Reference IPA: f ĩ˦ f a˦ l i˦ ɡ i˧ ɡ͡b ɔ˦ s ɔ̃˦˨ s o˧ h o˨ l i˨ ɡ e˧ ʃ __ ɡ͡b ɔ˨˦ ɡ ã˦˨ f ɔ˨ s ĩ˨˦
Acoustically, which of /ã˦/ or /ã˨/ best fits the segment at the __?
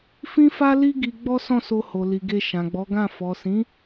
ã˨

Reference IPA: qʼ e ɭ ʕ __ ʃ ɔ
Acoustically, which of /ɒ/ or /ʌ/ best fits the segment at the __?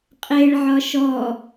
ɒ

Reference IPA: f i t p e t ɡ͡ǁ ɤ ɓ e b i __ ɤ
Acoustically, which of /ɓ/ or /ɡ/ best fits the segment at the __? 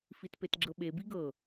ɡ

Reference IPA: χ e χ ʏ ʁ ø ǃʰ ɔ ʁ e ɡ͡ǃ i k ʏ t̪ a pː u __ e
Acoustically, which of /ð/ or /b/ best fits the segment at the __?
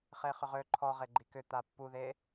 ð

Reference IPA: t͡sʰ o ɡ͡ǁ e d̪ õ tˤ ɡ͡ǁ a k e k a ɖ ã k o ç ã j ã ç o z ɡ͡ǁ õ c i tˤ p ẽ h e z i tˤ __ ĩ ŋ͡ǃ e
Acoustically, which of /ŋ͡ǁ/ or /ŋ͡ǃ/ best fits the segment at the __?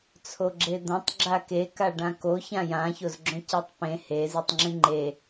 ŋ͡ǁ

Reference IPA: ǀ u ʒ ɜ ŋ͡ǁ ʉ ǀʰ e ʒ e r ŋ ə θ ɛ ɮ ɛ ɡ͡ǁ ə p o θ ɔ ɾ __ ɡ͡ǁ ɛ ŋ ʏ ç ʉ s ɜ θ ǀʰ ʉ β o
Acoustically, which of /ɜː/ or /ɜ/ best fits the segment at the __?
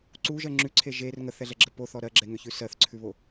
ɜ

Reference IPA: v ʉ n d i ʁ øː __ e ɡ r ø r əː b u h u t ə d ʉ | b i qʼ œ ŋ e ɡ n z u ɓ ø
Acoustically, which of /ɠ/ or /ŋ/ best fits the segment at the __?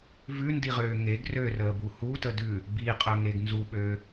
ŋ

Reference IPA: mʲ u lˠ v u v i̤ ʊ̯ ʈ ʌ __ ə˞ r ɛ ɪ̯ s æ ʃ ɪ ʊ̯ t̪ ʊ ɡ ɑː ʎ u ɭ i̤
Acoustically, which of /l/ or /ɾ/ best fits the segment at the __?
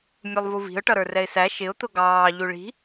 ɾ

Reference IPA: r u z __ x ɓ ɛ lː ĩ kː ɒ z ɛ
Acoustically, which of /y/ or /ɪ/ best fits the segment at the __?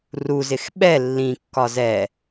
ɪ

